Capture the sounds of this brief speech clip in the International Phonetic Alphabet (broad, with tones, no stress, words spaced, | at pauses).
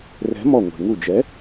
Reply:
rɛ̤˨˥mɔ˧˩ ŋʷe̤˩ŋu˧˩d͡ʒɛ˨˥